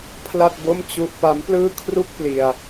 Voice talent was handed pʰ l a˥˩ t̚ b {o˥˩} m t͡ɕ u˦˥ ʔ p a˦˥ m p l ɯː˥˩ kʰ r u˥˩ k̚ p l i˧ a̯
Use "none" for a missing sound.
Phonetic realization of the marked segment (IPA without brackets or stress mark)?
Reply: o˥˩